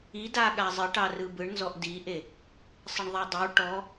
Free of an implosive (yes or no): no